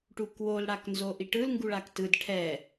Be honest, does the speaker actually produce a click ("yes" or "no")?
no